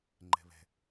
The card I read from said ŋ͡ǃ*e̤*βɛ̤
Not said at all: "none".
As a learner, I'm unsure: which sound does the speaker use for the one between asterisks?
ɛ̤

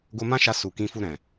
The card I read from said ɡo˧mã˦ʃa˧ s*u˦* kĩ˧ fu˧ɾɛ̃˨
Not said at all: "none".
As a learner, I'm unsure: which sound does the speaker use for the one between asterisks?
u˨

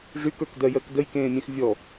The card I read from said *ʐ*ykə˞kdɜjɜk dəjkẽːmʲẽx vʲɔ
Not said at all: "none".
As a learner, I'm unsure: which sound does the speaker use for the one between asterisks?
ʐ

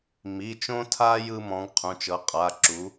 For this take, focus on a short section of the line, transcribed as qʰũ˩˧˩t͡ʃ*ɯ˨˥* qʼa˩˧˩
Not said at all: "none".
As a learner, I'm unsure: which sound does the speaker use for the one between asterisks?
ɤ˨˥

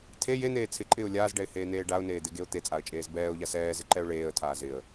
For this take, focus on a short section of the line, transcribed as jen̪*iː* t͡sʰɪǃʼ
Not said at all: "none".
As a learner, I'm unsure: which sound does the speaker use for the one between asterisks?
eː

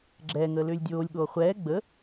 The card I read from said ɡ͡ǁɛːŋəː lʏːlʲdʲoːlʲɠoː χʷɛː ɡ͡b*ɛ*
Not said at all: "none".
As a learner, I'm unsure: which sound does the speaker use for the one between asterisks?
ə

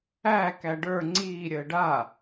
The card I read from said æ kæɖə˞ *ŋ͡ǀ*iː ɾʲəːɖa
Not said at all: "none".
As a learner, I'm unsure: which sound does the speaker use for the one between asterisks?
ŋ͡ǀ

